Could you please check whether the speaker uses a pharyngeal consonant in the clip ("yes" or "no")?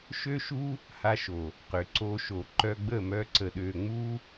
no